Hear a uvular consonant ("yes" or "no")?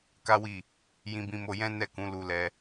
no